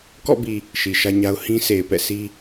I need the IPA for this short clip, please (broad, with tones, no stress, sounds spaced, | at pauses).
k ɔ̰˦˨ b i˨ | ʃ i˨ ʃ ä˦ ɲ a˦ ʊ̯ h ĩ˦ s e˨ ɪ̯ p ɛ̰˦˨ s i˦